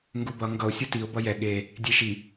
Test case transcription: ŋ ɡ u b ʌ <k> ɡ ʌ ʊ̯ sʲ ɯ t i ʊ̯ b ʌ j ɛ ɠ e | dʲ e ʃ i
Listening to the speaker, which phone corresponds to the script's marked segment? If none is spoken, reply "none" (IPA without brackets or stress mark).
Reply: ŋ